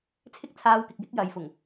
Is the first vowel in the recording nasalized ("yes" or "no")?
no